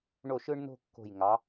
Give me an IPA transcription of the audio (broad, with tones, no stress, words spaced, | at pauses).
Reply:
ɳo˥˩ʃɯ˥ɳno̤˥ kːo̤˥˩j ŋɑ˩˥